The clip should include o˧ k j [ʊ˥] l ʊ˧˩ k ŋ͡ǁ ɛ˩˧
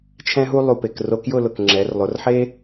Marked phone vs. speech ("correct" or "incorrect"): incorrect